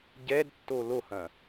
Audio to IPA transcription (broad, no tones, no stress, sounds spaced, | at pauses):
ɟ ɛ d tː o l o h ɐ̃